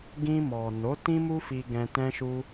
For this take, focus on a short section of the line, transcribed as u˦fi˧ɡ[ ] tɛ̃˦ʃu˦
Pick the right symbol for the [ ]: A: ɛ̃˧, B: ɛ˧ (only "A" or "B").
A